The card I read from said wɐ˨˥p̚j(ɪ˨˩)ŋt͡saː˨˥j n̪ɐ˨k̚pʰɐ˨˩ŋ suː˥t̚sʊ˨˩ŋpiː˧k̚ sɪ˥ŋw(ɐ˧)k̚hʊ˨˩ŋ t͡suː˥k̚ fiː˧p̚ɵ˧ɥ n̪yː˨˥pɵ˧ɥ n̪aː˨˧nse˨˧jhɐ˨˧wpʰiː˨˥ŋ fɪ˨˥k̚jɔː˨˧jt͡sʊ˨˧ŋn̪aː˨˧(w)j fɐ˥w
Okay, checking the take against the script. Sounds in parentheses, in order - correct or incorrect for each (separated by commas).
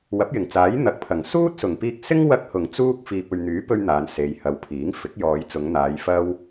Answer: correct, correct, incorrect